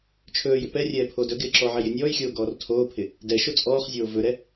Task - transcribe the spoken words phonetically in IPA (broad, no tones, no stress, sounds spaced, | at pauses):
t͡ʃʰ ɵː j ɪ p ɛ rʲ ɛː pʰ oː d ɵ ɡ ɪː ǁ ɔ ʕ ɛ j ɪ nʲ ɔː j xʲ oː ɡ ɔː r tʰ oː pʰ ɪ | d ɛ ʃ o t͡sʼ ɔː χ zʲ oː v ɵ ɾ ɛ